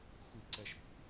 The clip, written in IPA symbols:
xʷ i ǀ ɛ ʃ p ḭ

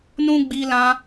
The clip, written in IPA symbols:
n ũ˦ ɡ͡b i˧ l ã˧

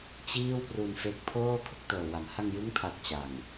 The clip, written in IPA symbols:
t͡ɕ iː˥˩ w p r u˧ n f e˦˥ k̚ pʰ oː˥˩ kʰ o˥˩ k̚ t ɤː˨˩ w a˨˩ m h a˧ ŋ j ɯ˦˥ ŋ pʰ a˨˩ k̚ t͡ɕ a˨˩ ŋ

